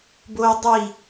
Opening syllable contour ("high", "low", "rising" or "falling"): high